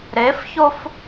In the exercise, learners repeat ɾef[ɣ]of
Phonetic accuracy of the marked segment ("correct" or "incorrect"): incorrect